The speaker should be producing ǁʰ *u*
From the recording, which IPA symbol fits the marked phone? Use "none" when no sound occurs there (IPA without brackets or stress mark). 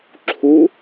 u